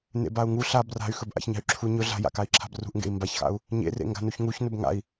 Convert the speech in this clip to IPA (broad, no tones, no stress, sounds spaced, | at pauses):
n ḛ b a u̯ ŋ u ɬ a b r a̤ y̯ x ɵ b ʔ a̰ ç ɲ a̤ y̯ ǁʰ u ɲ ɵ ɮ a̤ j a̰ k a i̯ ǁʰ a̤ b r ṳ ʔ ŋ ɡ ḛ i̯ m b a ç x a̰ u̯ | ɲ ḛ r ḛ ŋ ɡ a̤ n u ç ŋ u ç n ɵ b ŋ a̰ i̯